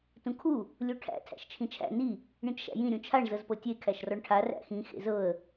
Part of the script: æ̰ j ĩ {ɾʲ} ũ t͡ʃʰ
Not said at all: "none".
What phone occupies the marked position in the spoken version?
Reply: ɾʲ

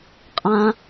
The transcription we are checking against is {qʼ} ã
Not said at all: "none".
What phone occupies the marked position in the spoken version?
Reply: qʼ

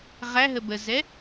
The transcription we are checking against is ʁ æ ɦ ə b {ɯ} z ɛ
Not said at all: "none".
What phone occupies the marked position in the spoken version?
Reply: ə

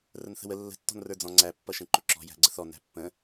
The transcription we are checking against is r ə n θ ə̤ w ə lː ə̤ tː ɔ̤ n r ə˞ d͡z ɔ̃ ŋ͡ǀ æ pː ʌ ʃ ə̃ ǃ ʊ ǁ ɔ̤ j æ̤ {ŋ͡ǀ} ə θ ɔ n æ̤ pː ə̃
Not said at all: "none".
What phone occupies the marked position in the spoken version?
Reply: ɡ͡ǀ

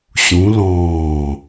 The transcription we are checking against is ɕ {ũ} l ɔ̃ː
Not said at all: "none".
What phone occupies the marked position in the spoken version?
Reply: ũ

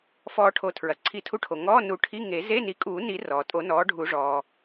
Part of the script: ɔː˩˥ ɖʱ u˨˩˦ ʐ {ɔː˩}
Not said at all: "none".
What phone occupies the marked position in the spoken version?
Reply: ɔː˩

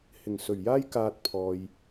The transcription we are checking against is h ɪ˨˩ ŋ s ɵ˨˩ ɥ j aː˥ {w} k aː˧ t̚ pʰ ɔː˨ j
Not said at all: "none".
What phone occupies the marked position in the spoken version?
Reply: j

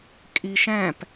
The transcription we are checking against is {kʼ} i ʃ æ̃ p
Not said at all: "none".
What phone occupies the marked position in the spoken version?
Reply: kʼ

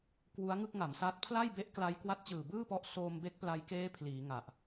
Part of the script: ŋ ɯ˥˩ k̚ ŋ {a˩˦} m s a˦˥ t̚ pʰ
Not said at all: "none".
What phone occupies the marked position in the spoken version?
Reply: a˩˦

